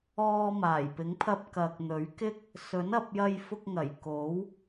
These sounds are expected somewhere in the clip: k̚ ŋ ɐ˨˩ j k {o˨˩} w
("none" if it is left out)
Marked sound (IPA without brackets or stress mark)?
o˨˥